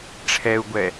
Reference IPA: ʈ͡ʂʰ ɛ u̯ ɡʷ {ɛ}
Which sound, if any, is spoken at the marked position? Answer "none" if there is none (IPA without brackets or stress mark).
ɛ